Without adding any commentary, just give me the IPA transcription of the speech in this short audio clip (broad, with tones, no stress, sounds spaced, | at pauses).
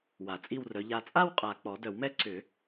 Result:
w a˨˩˦ t͡sʼ i˥˧ w r œ˨˦ ʎ a˨ t͡sʼ a˥˧ w qʼ a˨ k͡p ɔ˨˩˦ d œ˨˩˦ w m ɛ˥ ǀ ʏ˨˩˦